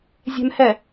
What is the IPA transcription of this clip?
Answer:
zʲ ɛ̤ m h ɛ

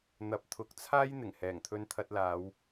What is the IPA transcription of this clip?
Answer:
n̪ ɐ˨ p̚ t̪ʰ ʊ˨˥ k̚ t͡sʰ aː˥ j n̪ ɪ˨˩ ŋ h ɛː˨˩ ŋ t̪ʰ ɵ˧ n t̪ʰ ɐ˧ t̚ l aː˨˧ w

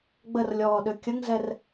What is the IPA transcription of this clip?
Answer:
ɡ͡b ə r lʲ ɔː ɗ ø kʲ ə ŋ z ɛ r

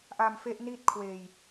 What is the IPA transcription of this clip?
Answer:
ʔ a˧ m f e˦˥ ʔ n i˥˩ t̚ kʰ w eː˧ j

